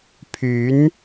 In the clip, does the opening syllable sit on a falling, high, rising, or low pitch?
rising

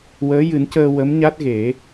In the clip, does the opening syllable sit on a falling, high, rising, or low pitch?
rising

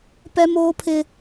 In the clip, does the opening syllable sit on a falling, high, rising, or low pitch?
high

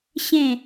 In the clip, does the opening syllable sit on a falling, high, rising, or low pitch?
falling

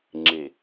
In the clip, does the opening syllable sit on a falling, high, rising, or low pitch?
low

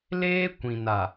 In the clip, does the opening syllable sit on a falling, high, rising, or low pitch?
high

